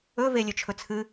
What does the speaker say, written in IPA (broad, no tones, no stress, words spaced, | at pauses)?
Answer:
ɵve lʲɵt͡ʃʰɵt͡sʰɨ